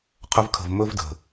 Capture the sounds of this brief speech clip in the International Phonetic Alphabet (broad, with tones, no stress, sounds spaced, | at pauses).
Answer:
qʰ ɵ˧ v kʰ ə̤˨ v m ɵ˧ v d ə̤˨